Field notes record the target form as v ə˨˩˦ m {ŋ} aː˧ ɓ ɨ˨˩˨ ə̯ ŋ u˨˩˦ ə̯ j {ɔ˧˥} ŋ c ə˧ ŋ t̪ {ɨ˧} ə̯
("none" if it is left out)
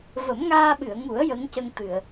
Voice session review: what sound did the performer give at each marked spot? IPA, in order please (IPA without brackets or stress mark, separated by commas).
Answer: ŋ, ə˧˥, ɨ˨˩˨